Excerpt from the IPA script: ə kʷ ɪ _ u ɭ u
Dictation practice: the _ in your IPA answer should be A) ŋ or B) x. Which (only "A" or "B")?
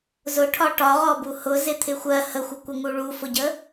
A